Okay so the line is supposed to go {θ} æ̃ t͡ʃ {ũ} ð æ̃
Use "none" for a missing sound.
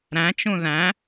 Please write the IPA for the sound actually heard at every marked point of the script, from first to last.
ɾ, ũ

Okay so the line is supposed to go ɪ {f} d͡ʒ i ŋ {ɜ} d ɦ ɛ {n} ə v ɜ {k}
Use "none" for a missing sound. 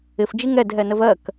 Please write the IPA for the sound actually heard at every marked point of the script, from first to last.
f, ɛ, n, k

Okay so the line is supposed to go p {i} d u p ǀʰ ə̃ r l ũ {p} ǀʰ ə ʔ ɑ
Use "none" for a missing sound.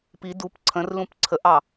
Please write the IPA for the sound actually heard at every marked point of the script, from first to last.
i, p

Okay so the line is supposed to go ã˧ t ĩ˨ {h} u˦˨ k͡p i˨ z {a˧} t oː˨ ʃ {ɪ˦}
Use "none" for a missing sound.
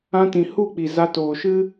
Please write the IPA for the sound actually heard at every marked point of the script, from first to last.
h, a˧, ɨ˦

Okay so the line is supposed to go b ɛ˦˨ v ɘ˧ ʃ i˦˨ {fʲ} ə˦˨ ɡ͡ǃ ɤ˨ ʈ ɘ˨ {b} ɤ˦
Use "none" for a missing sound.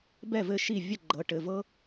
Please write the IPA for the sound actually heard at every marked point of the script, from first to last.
vʲ, v

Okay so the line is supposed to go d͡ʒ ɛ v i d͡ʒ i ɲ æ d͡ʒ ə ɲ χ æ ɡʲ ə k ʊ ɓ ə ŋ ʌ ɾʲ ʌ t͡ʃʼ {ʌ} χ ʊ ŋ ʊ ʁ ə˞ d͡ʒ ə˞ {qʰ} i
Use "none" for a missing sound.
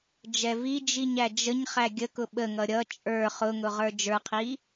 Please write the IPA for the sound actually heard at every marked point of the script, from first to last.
ə˞, qʰ

